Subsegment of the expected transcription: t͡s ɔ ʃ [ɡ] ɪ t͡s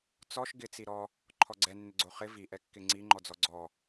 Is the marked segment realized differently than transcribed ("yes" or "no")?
no